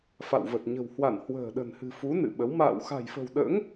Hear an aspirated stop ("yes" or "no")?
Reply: no